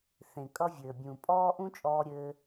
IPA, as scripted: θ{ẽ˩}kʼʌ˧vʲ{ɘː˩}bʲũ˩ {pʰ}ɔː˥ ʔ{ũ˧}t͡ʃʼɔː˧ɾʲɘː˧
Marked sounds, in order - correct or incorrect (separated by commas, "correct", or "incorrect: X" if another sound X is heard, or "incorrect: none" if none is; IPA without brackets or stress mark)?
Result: correct, correct, incorrect: pʼ, incorrect: ũ˥